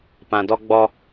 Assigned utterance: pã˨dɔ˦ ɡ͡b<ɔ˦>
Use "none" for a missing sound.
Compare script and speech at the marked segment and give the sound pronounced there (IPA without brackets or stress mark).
ɔ˦